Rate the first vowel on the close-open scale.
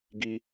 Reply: close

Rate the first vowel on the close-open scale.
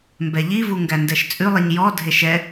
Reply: mid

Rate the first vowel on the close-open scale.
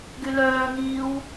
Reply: close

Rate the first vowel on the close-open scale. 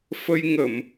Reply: mid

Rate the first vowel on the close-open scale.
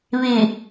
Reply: close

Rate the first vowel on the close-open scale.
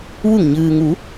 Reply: close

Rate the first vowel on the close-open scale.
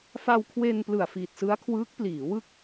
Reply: open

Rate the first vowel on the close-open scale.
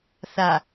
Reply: open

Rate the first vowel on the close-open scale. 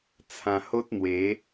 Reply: open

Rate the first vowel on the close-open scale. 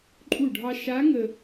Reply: close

